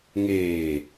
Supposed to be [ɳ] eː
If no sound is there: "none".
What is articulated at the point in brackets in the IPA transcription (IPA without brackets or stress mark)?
ŋ